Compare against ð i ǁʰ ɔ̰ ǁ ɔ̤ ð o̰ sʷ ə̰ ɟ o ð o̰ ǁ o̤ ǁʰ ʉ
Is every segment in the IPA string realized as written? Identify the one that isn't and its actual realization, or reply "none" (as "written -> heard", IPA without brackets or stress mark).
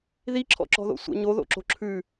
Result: ɟ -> ɲ